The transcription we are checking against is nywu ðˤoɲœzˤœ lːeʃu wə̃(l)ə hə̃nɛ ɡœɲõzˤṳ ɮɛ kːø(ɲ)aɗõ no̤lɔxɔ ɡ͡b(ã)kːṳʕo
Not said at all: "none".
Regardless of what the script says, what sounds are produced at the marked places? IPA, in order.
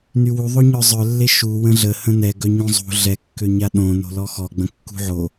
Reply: ɮ, ɲ, ə̃

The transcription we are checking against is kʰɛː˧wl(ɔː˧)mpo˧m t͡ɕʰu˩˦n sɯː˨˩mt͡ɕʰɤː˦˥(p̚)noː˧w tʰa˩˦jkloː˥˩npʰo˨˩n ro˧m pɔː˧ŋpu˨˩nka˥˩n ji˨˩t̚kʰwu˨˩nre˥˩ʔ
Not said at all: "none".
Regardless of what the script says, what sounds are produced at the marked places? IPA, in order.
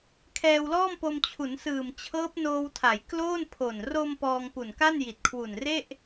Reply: ɔː˥˩, p̚

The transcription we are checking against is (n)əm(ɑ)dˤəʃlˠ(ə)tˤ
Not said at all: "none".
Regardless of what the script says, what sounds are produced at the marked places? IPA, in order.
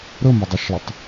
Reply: ɾ, ə, ə

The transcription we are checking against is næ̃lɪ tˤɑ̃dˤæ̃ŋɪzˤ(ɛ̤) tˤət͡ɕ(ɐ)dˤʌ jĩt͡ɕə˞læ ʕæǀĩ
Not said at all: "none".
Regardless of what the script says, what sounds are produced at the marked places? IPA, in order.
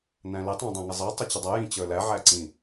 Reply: ɛ, ə

